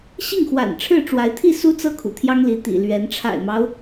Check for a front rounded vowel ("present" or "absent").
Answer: absent